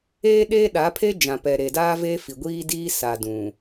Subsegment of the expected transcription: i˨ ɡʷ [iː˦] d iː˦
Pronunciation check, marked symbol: correct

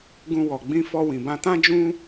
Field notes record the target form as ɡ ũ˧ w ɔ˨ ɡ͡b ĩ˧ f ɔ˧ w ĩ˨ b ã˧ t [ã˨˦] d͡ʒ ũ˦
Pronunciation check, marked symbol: incorrect: ã˦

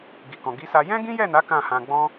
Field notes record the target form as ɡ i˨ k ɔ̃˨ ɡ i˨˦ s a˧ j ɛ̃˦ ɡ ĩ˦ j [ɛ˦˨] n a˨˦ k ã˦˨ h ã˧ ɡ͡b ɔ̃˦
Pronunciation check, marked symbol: correct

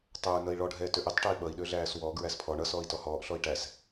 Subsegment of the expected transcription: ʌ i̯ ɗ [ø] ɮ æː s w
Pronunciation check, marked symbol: correct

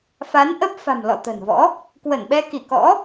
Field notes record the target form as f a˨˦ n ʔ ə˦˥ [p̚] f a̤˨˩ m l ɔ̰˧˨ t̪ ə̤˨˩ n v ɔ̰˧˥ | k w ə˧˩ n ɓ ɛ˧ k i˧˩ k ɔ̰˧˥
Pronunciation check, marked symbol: correct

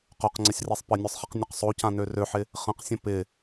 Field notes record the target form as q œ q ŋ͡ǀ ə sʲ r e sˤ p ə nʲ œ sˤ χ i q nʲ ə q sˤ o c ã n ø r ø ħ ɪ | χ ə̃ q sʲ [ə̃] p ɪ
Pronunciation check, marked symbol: correct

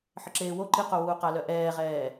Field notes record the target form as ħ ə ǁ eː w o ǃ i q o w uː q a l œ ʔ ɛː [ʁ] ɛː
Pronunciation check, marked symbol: correct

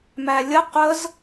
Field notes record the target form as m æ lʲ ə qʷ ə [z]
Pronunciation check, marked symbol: correct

